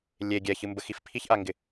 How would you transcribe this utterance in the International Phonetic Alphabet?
lʲ e ɡʲ ɛ ç ɨ m b ə x i f pʰ i ç ʔ a ŋ ɡ ɪ

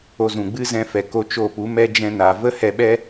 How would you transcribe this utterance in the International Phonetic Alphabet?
o˧ z ũ˨ ɡ͡b ɨ˦ z ɛ̃˧ f ɛ˨ k o˧ t͡ʃ o˦˨ p u˨˦ m ɛ˧ d͡ʒ ɛ̃˧ n a˨ v ə˦ h ɛ˧ ɓ ɛ˦

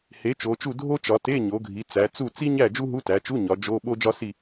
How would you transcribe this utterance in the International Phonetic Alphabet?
h e˩˧ t͡ʃ o˩˧ t͡ʃ u˥˨ dʱ o˥ t͡ʃ ɒ˩˧ t e˧˥˧ ɲ o˩˧ ɡʱ i˩˧ t͡s æ˩˧ t͡s u˥˨ t͡s i˥ ɲ æ˥˨ d͡ʒ u˥ ɦ u˧˥˧ t æ˩˧ t͡ʃ u˧˥˧ ɲ ɒ˩˧ d͡ʒ o˧˥˧ ɓ o˥ d͡ʒ ɒ˥ s i˥˨

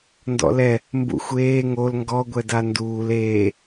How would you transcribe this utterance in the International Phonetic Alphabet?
n d ɔ̰ l ɛ | m b ṵ xʷ eː ŋ o l ŋ ɡ ɔ ɡʷ ɛ d a n d uː l eː

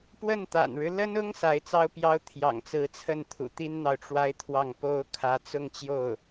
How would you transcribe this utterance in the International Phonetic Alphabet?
p w ə˥˩ n t̪ a̰˨˩ n ɻ ɻ̩˦ l ə˥ n ʊ˥ ŋ s a˧˥ ɪ̯ t͡s ɑ˥ ʊ̯ p j ɑ˥ ʊ̯ t̪ʰ j ɑ̰˨˩ ŋ t͡s ɹ̩˧˥ t͡sʰ ə˥˩ n t̪ʰ ṵ˨˩ t̪ i˥ n n̪ ɑ˨ ʊ̯ ʈ͡ʂ w a˥ ɪ̯ t̪ʰ w ɑ˥˩ ŋ p o˥ ʊ̯ kʰ ä˧˥ t͡s ʊ˥˧ ŋ t͡ɕ j o˥˩ ʊ̯

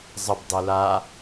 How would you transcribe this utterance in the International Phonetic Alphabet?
zˤ ə b dˤ i l a

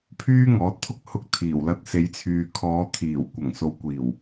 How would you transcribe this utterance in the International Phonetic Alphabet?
pʰ yː˥ ŋ ɔː˨˥ t̚ t̪ʰ ʊ˥ k̚ h ʊ˧ k̚ t̪ʰ iː˨˩ w l ɐ˧ t̚ s e˨˧ j t͡sʰ yː˨ kʰ ɔː˨˧ t̪ʰ iː˨˩ w kʷ ɐ˨˩ ŋ s o˨ w kʷ iː˨˩ w

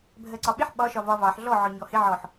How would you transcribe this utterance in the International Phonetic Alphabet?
bʱ ɜ ǀ ɒ ɓ ɪ ħ ɓ ɒ ʃ ɒ v ɒ v ɑ ħ ɮ ɔ ʕ ɔ ɲ ɔ h ɪ ʕ ɔ ħ

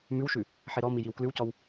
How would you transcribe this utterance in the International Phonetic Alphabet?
m ʉ w ʃ ʉ | ħ e ɾ ɔ m i j i w k l ʉ w c ɔ w

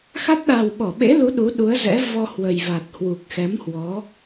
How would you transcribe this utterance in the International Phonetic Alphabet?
x a˦˥ t̚ ɗ a˨˩ w ɓ ɔ˧˩ ɓ ḛ˧˥ l u˨˦ ɗ u˨˦ ɗ u˨˦ ə̯ z ɛ̰˧˥ v ɔ˧ h w ə˨˩ j v a˨˩ t̚ h w u˨˩ k̚ x ɛ˨˦ m h w ɔ˨˦

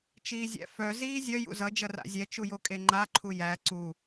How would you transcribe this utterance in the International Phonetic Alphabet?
t͡ʃ iː zʲ æ̰ f œ z iː zʲ œ j ṵ z ʌ d͡ʒ ʌ r a̰ zʲ ɛ t͡ʃ u j o kʼ e ŋ͡ǃ a ǃʰ u j æ ǀ u

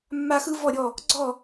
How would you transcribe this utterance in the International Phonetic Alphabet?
mː a˥ x ɯ˥ v ɔ˥˧ ɾʲ ɔ˥˧ | ɡ͡ǀ ɔ˥˧

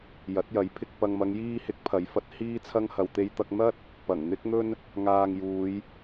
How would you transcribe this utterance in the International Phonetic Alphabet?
j ɐ˨˥ t̚ j ɐ˨˥ j pʰ ɪ˧ k̚ p ɐ˨ ŋ m ɐ˨˧ ŋ j iː˧ h ɪ˨˥ k̚ pʰ ɐ˨˥ j f ɐ˨˥ t̚ h iː˥ t͡sʰ ɐ˥ ŋ h ɐ˧ w t̪ e˧ j t̪ ɐ˧ k̚ n̪ ɐ˥ t̚ | p ɐ˨˩ ŋ n̪ ɪ˥ k̚ n̪ ɵ˥ n | ŋ aː˧ ŋ j uː˨˧ j

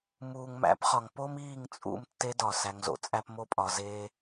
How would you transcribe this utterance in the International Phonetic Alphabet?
m uː˨ ŋ m æ̰˨˦ p χ ɒ˨ ŋ p o˦ m iː˦˨ ŋ t͡sʼ ṵ˦˨ m tː e˧ d ɒ˨ s æ˧ ŋ z o̰˧ t͡sʼ æ˦ p m o˦ pʼ ɒ˧ z eː˦

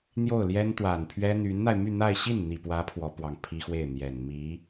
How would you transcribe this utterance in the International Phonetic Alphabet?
n̪ j o˥˩ ʊ̯ l j ɛ˥ n t̪ w a˨˩ n pʰ ɥ ɛ˥ n̪ y˧˥ n n̪ a˧ ɪ̯ m y˥˧ n̪ a˥˧ ɪ̯ ɕ i˥˩ n n̪ i˨˩ p w ä˧˥ pʰ w ɔ˧˥ p w ɑ˨˩ ŋ pʰ i˥ x w e˥˩ ɪ̯ n̪ j ɛ˨˩ n m i˧˥

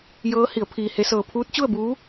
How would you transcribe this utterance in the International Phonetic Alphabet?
j ɤː˧˥ h i˩˧ ə̯ pʰ iː˧ h e˧˥ s ɤː˧ pʰ uː˧˥ t̚ t͡ɕ u˥˨ ə̯ b uː˧˥

